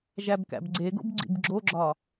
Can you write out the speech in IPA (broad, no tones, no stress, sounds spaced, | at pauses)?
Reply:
ʒ æ b k æ̰ b ɡ͡ǀ e ɡ o̰ b ɡ͡ǀ ḭ b ɡ͡ǁ o ɡ͡ǁ ɒ